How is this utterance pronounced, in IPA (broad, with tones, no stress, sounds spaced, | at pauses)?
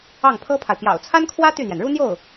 ɑ˥˩ ŋ pʰ ɤ˥ pʰ a˨ ɪ̯ p j ɑ̰˨˩ ʊ̯ t͡sʰ a˥ n kʰ w ä˥ t̪ y˥˩ n̪ j ɛ˩ n ɻ u˥ n̪ j o˥˩ ʊ̯